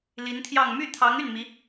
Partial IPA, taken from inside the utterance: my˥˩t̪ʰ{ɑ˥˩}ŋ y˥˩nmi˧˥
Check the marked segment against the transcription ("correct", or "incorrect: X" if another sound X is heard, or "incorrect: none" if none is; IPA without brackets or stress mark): incorrect: ɑ˧˥